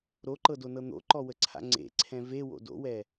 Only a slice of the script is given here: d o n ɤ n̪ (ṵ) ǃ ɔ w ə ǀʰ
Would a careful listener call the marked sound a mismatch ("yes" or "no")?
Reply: yes